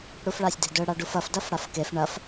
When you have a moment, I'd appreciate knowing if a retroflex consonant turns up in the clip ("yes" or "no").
yes